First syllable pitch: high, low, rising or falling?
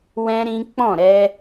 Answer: high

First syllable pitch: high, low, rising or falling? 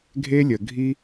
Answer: high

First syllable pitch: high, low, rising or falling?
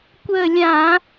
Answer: falling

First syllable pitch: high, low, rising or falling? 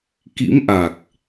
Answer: rising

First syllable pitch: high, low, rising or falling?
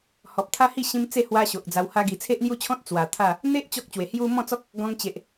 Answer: low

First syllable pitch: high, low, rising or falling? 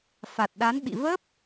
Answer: low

